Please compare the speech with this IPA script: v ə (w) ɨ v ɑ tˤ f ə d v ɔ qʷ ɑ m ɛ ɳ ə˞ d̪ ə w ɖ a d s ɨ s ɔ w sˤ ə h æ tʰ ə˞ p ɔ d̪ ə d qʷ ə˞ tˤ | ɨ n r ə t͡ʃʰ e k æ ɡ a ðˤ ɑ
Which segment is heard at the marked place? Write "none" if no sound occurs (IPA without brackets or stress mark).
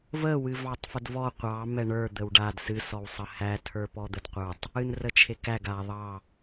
w